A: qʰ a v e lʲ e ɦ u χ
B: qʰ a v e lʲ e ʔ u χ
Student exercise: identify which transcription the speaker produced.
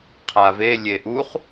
B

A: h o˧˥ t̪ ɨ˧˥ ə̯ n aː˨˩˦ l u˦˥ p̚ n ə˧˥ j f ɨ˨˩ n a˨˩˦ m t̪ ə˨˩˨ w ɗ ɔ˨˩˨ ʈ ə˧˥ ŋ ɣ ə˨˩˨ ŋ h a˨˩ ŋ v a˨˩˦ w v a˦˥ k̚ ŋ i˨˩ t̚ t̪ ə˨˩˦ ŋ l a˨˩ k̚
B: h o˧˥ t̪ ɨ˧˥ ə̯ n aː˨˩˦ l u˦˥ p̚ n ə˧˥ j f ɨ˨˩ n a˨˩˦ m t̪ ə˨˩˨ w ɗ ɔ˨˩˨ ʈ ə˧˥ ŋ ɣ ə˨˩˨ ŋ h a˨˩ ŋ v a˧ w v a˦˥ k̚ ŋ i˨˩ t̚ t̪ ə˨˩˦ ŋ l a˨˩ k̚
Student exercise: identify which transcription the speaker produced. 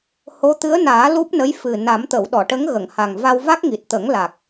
B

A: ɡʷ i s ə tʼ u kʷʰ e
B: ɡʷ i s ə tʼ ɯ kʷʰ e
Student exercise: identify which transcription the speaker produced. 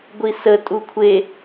A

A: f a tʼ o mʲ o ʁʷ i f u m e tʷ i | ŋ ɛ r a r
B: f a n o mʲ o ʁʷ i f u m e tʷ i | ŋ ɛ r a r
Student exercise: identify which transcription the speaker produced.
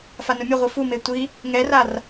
B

